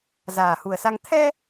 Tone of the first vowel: low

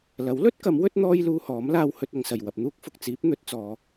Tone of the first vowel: rising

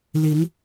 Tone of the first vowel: rising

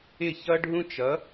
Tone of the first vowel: falling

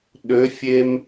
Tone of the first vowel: rising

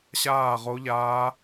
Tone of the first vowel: falling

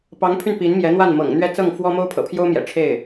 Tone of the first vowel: rising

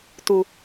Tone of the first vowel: low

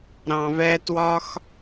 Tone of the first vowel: low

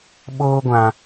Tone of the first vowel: high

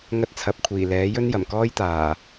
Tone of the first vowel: high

